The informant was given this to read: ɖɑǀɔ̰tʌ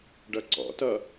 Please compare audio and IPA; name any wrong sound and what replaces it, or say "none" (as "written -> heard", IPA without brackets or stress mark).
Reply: ɑ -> ʌ